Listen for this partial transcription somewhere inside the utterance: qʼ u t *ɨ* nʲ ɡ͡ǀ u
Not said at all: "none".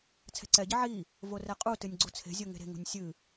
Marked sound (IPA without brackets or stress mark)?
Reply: ɨ